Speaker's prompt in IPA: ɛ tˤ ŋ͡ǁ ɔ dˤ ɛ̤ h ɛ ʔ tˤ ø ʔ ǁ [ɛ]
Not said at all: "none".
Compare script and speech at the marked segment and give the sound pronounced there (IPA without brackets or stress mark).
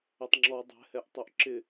ɪ